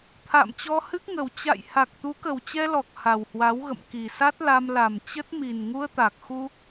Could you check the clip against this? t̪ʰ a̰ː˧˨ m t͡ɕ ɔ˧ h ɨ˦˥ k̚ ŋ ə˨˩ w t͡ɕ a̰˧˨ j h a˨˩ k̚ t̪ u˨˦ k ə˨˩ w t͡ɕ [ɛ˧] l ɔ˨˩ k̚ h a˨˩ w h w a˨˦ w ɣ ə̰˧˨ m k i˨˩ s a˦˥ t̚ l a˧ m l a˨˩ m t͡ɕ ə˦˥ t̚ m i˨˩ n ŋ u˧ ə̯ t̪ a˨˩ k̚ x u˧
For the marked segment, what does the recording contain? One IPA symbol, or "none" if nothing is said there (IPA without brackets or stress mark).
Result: ɛ˧